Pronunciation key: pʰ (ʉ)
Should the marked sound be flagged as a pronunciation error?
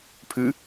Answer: no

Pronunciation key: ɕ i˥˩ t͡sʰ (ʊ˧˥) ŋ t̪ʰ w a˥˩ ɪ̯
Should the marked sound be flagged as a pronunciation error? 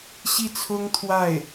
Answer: yes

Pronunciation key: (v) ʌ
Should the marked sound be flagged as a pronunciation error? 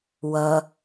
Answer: yes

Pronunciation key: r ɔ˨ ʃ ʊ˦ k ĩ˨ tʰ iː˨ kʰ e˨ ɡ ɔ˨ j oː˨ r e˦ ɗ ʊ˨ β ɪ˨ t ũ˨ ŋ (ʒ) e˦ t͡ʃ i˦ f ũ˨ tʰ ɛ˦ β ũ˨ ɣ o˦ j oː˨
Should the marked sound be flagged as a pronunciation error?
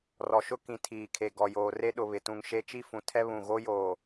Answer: yes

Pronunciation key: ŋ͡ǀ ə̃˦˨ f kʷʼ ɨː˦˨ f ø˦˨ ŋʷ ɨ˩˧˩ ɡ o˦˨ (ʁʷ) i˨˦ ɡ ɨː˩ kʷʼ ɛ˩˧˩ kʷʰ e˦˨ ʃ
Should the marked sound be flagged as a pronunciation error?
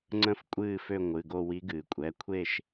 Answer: yes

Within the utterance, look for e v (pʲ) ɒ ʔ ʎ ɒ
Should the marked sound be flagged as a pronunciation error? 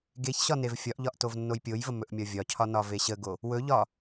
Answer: yes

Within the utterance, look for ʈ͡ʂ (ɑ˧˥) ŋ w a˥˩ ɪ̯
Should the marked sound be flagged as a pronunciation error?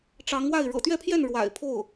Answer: no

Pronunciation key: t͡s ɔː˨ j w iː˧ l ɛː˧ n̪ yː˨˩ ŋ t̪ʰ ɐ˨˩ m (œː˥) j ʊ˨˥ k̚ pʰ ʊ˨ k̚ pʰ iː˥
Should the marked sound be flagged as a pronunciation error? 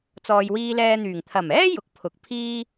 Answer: yes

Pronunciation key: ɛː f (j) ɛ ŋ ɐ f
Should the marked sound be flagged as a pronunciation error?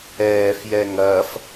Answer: no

